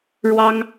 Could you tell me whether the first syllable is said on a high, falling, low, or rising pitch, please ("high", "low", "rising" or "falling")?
high